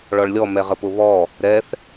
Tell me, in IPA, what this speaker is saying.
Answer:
ɭ ɔ ɭ lʲ ɔ m ɛ ʁ ə p ʊ β ɔ | ɾ ɛ θ

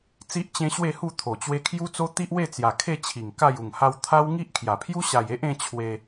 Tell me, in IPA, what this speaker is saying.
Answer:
t͡s i˦ ʔ t͡ɕ ẽ˦ ɕ w e˥˧ h u˥˧ t̪ʰ o˨˩ t͡ɕ w e˦ kʰ j u˦ t͡s o˦ t̪ i˦ ʔ w e˥˧ t͡s j a˨˩ kʰ e˥˧ t͡ɕʰ i˨˩ ŋ k a˥˧ j u˨˩ ŋ h a˧ w t̪ʰ a˦ w ŋ i˦ ʔ kʰ j a˨˩ pʰ j u˦ ɕ a˨˩ j e˦ ʔ ẽ˦ t͡ɕʰ w e˧

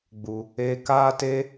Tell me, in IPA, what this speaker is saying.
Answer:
ɡ͡b u˧ | eː˧ k aː˦ t e˦

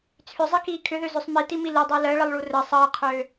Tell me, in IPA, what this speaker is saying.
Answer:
t͡sʰ ʏ zˤ i k iː kʰ ʏ ð ø z ø sˤ m i t i m i l i dˤ əː l əː ɭ ə lˠ ɭ u r ə sˤ əː qʰ øː

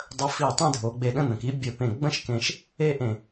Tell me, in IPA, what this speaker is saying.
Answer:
dˤ ə˧ f i˧˩ tˤ ẽ˥˧ dʱ o˩˧ ɡ͡b e˧˩ ɗ ə̃˥˧ n̪ ə̃˩˧ k i˥ bʲ ɘ˧˩ p ẽ˧˩ ɡ͡b ə̃˥ ʃ k ẽ˧ ʃ | e˥˧ ʔ ẽ˧˩

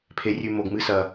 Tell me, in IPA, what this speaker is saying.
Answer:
pʰ e˨ rʲ ʉ˨ m o˨ ɡ m ɨ˧ s ɐ˨

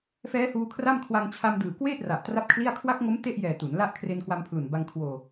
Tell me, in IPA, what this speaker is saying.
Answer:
f ɛː˦˥ h uː˧ kʰ r a˥˩ m kʰ w a˧ ŋ t͡ɕʰ a˧ m d ɯː˨˩ k w eː˥˩ t̚ r a˨˩ ʔ t r a˥˩ p̚ kʰ l i˥˩ a̯ kʰ w a˦˥ k̚ ŋ o˦˥ m t e˥˩ ʔ j ɛː˨˩ t u˩˦ n l a˥˩ ʔ kʰ r e˧ n k w a˧ m pʰ l u˨˩ n b a˧ ŋ kʰ w oː˧

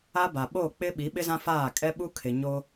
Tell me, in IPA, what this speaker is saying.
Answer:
a˦ b a˨ ɓ o˦˨ k͡p ɪ˦ ɓ i˨˦ ɓ ɪ˦ z ã˦ f aː˦˨ kʼ ɛ˦ ɓ u˦ kʰ ɪ˨ ɲ o˦

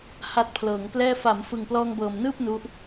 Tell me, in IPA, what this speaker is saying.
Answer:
h a˦˥ t̚ pʰ l ɤː˩˦ ŋ p l ɛː˥˩ f a˩˦ m f ɯ˨˩ ŋ p l ɔː˧ ŋ b ɤː˨˩ m n ɯː˥˩ p̚ n u˦˥ ʔ

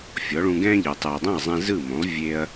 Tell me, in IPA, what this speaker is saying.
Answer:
fʲ ɔ˩˥ ɭ ũ˧ ɡ ɛ̃ː˥ ʎ ɯː˩ tˤ ɯ˩ ɐ̯ dˤ ɛ̃˥˩ ɐ̯ zˤ ɛ̃˧ z ɯ˥˩ m õ˩˥ lˠ vʲ e˧ ɐ̯

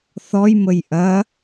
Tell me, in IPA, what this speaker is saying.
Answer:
θ ɔ j m ə j ʔ ɐ

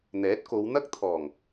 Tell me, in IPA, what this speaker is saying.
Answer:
n̪ ɛː˨˥ t̚ k o˨˧ w n̪ ɐ˥ k̚ t̪ʰ ɔː˨˩ ŋ

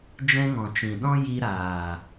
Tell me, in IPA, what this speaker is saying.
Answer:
d͡ʒ ɛ̃˧ ŋ ɔ̃˨ t͡ʃ ĩ˨ ɗ ɔ̃˧ j i˧ ɾ aː˨

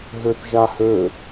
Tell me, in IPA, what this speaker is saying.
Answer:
ɦ ø θ ʒ a h ø

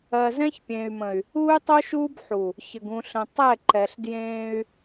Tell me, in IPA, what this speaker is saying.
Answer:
ɜ˨ z ɛ̃˦ ç pʲ ẽː˨ y̯ m ə̃˨ y̯ | uː˦ y̯ tˤ u˦ ʃ uː˦ b ħ u˨ | ç ə˨ ɡ ũ˨ ɬ ə̃˨ tˤ ɛ˦˨ ǃ ɛ˨ ɬ d j ẽː˦ y̯

